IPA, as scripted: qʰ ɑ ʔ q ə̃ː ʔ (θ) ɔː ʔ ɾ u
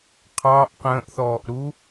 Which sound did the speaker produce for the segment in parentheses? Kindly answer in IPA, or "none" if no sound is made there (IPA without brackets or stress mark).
θ